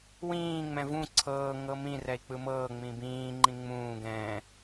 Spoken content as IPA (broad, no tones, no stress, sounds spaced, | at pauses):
w ĩː ŋ͡m ɛ̃ v ũ ǀʰ ɤː ŋ ɤ m ĩ r ɛ i̯ k͡p ɯ m ɤː ŋ͡m ĩ b ĩː ŋ͡ǃ ĩ ŋ͡m ũː ɡ ɛ̃